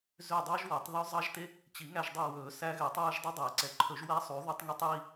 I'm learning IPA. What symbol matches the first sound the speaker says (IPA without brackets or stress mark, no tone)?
z